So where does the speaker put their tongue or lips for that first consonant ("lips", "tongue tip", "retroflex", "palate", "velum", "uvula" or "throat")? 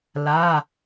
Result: tongue tip